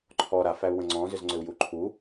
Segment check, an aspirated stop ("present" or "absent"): present